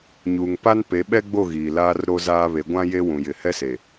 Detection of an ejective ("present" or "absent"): absent